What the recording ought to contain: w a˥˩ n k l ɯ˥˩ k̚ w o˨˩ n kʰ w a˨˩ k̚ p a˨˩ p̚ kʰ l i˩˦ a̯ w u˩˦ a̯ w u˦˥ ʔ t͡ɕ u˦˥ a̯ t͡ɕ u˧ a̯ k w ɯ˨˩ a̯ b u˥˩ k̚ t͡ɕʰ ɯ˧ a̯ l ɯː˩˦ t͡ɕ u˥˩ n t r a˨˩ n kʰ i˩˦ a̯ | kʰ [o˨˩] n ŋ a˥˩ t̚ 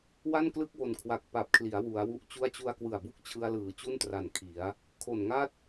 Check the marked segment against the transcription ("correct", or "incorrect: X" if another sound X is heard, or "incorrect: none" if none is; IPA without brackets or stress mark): correct